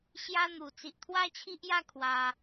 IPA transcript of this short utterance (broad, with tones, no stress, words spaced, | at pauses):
ɕja˦n̪u˨˩ t͡si˨ʔt̪ʰwa˦t͡ɕʰi˦ʔja˦ kʰwa˧